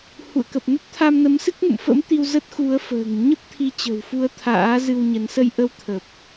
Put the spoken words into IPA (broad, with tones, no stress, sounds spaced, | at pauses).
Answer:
h ṵ˧˨ ə̯ k ə˨˩ p̚ n ə˦˥ t̚ t̪ʰ a˧ m n ə˨˦ m s ɨ˦˥ k̚ ŋ ṵ˧˨ m f ə̰˧˥ m t̪ i˧ w z ə˦˥ t̚ x u˨˦ ə̯ f ə̤ː˨˩ ŋ ɲ ə˦˥ p̚ t̪ʰ i˨˦ t͡ɕ ə̤˨˩ w f u˨˦ ə̯ t̪ʰ a̰ː˧˥ z ɨ˧ w ɲ ə˨˦ n s ə˧ j ʔ ə˧ w t̪ʰ ə˨˩ p̚